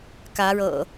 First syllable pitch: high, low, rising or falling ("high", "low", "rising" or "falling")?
rising